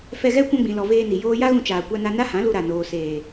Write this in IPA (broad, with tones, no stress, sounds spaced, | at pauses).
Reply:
f ɛ˧ ɣ ɛ˦ kʷ ã˧ ɡ͡b ĩ˨ l ɔ˨ v eː˧ n i˨ j oː˧ j a˦ ɣ ũ˧ t͡ʃ aː˨ kʷ a˧ n a˧ n a˦ h ã˨˦ l u˧ ɾ a˨ n oː˨ s eː˨